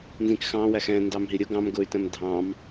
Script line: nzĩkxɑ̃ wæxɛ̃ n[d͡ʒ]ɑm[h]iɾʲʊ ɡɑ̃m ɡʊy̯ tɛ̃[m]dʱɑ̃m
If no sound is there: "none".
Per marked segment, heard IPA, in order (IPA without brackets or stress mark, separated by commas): d, ɦ, m